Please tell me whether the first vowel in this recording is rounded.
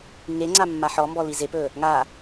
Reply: no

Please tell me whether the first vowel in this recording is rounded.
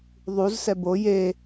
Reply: yes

